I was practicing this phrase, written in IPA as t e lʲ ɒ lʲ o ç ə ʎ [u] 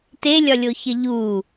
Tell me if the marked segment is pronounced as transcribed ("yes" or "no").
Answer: yes